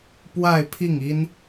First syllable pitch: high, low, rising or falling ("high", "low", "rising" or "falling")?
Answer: falling